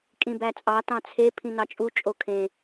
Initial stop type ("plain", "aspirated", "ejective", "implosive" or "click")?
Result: ejective